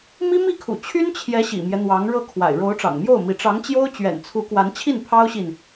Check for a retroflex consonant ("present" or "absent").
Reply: present